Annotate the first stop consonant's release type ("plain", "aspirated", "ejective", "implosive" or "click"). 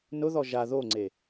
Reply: click